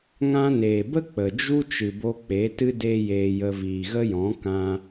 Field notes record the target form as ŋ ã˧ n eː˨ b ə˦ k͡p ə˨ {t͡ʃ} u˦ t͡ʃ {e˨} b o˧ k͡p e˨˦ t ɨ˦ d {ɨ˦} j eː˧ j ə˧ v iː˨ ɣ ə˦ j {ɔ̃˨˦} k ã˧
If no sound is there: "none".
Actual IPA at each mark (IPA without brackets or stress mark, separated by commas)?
d͡ʒ, ɨ˨, e˦, ɔ̃˨˦